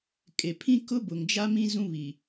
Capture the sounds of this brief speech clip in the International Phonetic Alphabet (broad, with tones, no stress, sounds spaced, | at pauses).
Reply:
kʼ e˨ pʰ ĩ˦ k ʊ˦ b ʊ˨ ŋ d͡ʒ a˦ m ĩ˦ z ũ˦ β i˨